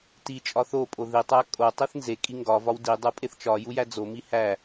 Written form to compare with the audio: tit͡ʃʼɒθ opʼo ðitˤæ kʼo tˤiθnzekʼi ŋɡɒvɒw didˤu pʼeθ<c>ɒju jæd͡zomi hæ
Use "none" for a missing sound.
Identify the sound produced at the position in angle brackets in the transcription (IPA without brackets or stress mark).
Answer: t͡ʃ